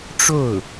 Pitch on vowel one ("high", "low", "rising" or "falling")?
falling